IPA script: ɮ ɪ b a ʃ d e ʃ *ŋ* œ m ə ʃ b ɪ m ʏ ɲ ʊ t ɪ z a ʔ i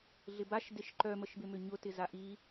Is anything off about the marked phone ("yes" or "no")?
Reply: yes